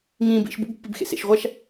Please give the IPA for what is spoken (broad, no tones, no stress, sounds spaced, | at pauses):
ŋ ĩː b ḭ ʃ b ṵ b pː i b x ḛ s ḛ ʃ ʁʷ a ʃ